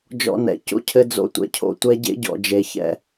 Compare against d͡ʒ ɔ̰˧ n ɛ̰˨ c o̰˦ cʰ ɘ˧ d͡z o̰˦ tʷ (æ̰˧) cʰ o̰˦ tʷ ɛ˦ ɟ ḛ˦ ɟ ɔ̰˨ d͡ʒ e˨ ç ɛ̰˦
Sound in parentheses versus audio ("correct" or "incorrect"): incorrect